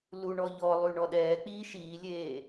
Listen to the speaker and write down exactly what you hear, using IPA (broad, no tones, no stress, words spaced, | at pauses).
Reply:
luɳɔ ʎɔlˠy ɳɔɗɛːk͡piː ʃiːlʲeː